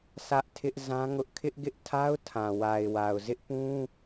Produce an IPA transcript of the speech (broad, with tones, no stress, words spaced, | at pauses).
sä˦ʔtʰɪ˦ʔ zã˦ŋʊ˦ʔ kʰɪ˦ʔɡɪ˦ʔ tʰa˦ʊ̯tʰã˨ wa˨ɪ̯wa˨ʊ̯ zɪ˦ʔpũ˦